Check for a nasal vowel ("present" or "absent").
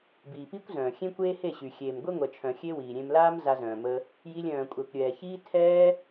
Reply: present